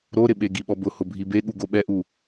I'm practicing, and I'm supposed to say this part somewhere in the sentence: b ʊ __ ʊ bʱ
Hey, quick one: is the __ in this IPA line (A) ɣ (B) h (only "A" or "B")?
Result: B